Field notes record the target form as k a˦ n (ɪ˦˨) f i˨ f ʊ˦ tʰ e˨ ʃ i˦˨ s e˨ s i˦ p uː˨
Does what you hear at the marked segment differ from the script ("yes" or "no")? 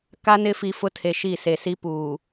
yes